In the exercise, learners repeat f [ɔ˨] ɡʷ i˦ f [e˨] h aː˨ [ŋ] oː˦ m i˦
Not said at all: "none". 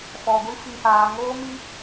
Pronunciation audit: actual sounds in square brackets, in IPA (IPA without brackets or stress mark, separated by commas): ɔ˨, i˨, ŋ